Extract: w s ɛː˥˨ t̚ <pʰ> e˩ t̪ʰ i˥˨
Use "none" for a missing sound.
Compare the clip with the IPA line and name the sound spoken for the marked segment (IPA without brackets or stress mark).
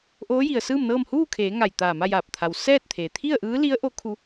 t̪ʰ